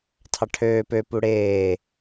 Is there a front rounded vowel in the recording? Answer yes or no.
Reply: yes